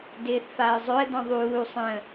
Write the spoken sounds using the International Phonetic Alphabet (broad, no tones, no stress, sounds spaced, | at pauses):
d ɪː θ f a ə̯ zˤ ɵ ə̯ d ɔ̃ ðˤ uː sˤ ə̃